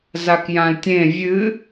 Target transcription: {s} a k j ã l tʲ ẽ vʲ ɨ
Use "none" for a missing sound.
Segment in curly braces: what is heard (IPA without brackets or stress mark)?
z